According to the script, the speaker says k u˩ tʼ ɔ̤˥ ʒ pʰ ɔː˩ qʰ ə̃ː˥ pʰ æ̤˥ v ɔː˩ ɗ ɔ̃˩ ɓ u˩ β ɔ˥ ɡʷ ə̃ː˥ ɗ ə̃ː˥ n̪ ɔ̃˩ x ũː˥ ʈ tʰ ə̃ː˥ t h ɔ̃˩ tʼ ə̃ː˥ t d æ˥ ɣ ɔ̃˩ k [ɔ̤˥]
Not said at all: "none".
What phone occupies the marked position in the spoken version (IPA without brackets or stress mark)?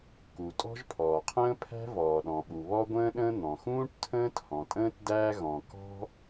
ɔ̤˥